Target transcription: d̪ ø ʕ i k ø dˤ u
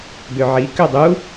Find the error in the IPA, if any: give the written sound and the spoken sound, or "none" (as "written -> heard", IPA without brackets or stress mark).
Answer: none